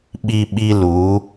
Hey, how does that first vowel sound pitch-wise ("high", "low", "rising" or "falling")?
high